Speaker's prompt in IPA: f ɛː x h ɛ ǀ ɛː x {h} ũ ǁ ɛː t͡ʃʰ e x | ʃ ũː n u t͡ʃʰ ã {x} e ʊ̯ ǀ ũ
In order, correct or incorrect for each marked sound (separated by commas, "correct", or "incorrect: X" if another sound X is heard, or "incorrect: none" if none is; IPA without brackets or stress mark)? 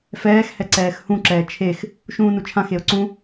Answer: correct, correct